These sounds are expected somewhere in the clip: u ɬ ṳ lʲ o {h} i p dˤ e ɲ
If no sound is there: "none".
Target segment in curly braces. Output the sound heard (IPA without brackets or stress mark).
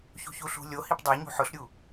h